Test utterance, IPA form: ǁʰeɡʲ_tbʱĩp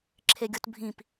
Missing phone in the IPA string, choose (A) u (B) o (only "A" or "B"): B